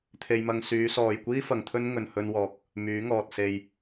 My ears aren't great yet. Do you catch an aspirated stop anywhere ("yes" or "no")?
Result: yes